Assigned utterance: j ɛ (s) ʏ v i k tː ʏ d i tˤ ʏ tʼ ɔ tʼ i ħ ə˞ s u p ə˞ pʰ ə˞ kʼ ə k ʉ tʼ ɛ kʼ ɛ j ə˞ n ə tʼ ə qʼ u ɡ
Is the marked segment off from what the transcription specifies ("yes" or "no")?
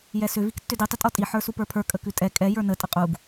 no